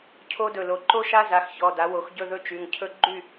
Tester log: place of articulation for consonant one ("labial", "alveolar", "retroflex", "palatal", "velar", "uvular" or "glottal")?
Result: palatal